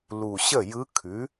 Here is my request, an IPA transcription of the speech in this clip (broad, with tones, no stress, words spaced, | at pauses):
lu˨˩ɕə˥˩jɯ˧˥ kʰʉ˩˥